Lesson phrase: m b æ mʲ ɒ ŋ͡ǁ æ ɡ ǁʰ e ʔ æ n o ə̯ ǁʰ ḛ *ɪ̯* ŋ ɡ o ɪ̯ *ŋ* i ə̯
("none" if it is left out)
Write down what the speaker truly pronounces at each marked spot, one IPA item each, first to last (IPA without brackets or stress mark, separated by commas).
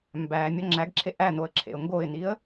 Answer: ʊ̯, n